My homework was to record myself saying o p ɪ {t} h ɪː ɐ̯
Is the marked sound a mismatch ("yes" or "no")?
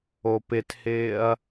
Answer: no